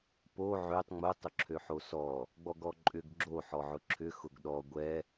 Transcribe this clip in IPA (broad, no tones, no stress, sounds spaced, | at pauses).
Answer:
p o ʕ ø tˤ ŋ͡m ʊ tˤ ʊ ǁʰ ø ħ o s ɔ | ɡ͡b ɔ ɡ ɔ ǃʼ ʏ ɡ ɡ͡ǁ o ħ ɔ ʕ ʊ ǁʰ ʏ x ʊ ɡ ɗ ɔ ɡʷ ɛ